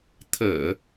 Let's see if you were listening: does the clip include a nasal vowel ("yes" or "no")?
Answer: no